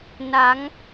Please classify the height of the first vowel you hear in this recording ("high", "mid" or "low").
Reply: low